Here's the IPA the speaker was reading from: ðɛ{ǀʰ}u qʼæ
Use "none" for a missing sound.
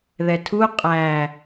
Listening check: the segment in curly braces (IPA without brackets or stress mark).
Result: tʰ